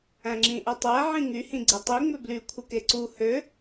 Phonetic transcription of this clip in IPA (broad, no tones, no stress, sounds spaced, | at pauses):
æ̃ ŋ͡ǁ ĩ ʔ æ tˤ æ ʕ ĩ ŋ y h ĩ ɡ͡ǀ e tˤ i ŋ͡m ø b l y kʷʰ ɯ k e ǀ u h ø